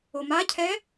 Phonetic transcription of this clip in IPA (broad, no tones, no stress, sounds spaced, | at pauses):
o m a cʰ ɛ